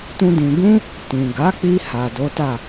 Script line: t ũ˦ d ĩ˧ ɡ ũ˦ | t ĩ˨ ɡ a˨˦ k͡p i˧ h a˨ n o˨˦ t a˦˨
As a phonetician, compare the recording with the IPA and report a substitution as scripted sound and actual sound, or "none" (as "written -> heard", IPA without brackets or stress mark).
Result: n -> d